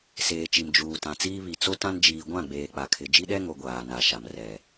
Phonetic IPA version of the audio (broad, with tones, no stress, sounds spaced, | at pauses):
s eː˨ t͡ʃ i˨ m d͡ʒ uː˨ t ã˨ t͡s iː˦ β i˨ t͡s o˦ t ã˦ n d͡ʒ iː˨ ɡʷ ã˦˨ ɡ͡b eː˨ k͡p a˨ kʰ ɪ˨ d͡ʒ i˦ ɗ ɛ˦ ŋ o˨ ɡʷ aː˨ n a˨ ʃ a˨ m r ɛ˨